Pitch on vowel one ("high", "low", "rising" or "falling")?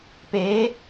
rising